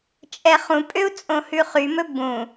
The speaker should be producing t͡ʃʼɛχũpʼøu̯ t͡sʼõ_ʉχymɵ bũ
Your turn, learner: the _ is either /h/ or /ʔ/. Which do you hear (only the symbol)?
h